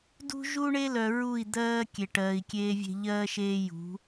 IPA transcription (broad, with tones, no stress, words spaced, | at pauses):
dṳ˦ʒu˦ɳe˦lœ˨ ɹu˦˨i̯d̪ɜː˦ kʲe˨ʈɜː˨i̯kʲeː˦vʲe̤˦ ʎɜː˦ʃeː˦jṳ˨˦